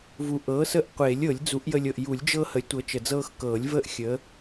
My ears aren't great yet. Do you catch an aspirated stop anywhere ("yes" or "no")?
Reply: no